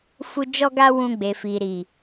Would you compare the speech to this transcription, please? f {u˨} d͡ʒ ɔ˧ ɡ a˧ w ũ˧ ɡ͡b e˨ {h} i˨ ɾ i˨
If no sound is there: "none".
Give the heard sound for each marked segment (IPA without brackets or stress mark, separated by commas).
u˨, f